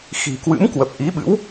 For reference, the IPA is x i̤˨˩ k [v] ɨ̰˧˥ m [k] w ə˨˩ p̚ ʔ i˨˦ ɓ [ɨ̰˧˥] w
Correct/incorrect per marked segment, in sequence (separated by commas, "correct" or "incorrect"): incorrect, correct, correct